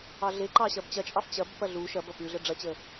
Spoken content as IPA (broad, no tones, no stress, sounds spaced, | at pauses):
ɑ ɮ e ǃ ɑ ɕ ɐ b t͡ɕ ɐ t͡ʃʼ ɑ f t͡ɕ ɐ b p ɐ ɮ u ʃ ɐ b ɐ p ʉ ɮ ə ɖ͡ʐ ɐ t͡ɕ ə